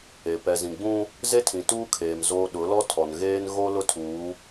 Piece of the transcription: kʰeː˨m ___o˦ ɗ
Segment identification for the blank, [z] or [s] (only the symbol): z